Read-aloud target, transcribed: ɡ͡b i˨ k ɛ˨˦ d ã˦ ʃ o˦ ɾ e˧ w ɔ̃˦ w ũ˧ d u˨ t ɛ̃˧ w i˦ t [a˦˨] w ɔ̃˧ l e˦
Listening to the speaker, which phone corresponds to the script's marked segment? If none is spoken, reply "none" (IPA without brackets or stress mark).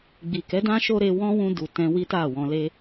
a˦˨